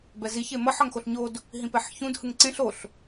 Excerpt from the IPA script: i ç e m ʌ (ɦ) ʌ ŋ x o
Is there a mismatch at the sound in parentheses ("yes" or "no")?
yes